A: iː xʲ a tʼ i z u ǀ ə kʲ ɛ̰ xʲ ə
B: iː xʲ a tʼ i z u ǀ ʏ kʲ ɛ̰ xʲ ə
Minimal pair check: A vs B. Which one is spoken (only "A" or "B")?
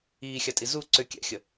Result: B